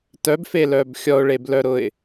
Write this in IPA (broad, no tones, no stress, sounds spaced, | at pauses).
t œ b f e l œ b xʲ ɔ ʊ̯ ɭ e b l œ ɾ ʊ ɪ̯